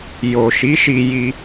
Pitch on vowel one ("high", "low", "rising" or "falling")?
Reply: low